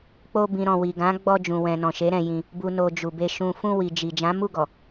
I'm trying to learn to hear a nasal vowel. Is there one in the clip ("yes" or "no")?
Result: yes